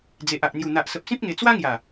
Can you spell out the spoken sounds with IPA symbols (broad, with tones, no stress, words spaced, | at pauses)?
d͡ze˨ʔa˨ʔn̪ju˨˩ n̪a˨ʔsə˨p̚sĩ˦p̚ŋe˨˩ t͡swa˦ŋja˨˩